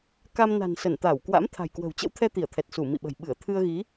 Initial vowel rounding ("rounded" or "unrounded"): unrounded